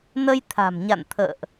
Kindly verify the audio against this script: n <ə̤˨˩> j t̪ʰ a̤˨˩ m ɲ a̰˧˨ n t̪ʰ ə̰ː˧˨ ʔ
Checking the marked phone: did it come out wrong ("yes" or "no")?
yes